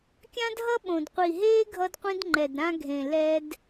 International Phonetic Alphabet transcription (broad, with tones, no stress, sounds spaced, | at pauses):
kʲ ã˦ d ɦ ʌ˦ ɓ õ˨ d qʷ i˨ ɦ eː˦ ɡʱ ʌ˦ d qʷ ĩ˦ d ŋ͡ǃ ɛ˨ d ɾ ã˦ ɡʱ ẽ˨ l ɛ˦ d